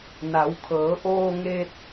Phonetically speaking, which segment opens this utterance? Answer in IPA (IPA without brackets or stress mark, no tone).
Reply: n